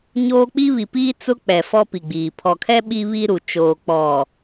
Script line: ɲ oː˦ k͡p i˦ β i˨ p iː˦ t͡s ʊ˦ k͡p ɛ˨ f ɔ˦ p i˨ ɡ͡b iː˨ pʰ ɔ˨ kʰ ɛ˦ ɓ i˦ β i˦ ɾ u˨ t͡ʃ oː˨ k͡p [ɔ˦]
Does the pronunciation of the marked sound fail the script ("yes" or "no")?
yes